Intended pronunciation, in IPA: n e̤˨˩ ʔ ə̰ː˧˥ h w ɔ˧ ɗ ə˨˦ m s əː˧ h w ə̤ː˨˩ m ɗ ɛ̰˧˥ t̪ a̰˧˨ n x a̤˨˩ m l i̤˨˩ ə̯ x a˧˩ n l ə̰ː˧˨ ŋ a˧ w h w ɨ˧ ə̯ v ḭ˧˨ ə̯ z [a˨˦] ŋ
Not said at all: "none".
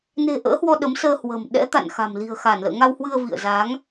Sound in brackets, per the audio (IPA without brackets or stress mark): a˨˦